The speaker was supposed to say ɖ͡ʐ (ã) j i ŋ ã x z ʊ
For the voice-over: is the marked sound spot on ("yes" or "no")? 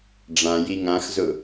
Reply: yes